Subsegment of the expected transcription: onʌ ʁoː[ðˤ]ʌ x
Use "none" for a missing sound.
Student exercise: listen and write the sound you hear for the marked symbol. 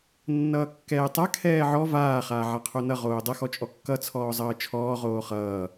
dˤ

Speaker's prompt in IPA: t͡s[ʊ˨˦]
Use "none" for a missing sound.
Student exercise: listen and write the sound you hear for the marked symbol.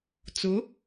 ʊ˨˦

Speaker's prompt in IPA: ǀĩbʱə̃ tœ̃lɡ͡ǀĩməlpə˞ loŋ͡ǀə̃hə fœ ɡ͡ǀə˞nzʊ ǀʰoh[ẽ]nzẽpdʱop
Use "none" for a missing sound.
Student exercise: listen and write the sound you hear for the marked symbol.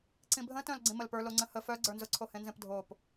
ẽ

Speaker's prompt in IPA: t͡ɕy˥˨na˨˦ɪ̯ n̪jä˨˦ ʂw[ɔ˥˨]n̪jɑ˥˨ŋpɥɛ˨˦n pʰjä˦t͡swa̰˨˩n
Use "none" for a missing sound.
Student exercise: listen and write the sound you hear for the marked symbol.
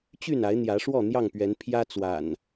ɔ˥˨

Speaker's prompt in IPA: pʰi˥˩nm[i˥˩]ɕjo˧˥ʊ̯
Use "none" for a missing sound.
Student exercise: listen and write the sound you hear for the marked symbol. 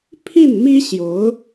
i˥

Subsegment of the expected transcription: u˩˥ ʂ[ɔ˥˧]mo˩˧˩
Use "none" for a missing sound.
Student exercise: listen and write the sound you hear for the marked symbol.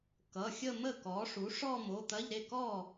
ɔ˥˧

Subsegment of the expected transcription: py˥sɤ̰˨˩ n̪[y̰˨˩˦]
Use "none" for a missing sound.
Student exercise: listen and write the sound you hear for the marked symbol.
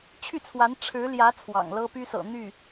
y˥˩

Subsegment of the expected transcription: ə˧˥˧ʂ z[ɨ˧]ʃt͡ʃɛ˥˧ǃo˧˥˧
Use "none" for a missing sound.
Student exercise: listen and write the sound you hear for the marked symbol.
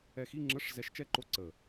ɛ˧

